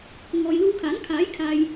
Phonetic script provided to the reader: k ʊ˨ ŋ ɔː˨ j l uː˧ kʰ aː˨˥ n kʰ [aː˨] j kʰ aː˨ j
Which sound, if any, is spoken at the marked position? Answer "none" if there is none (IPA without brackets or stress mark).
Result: aː˨˥